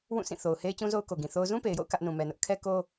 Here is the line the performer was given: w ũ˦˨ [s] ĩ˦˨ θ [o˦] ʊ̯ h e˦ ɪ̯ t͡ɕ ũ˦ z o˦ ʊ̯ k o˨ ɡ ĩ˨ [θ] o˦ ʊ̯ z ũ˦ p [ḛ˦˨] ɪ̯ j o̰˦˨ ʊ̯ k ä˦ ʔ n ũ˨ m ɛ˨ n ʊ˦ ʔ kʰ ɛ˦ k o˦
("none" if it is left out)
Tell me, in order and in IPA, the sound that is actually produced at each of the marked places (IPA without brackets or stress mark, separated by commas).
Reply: s, o˨, θ, e˨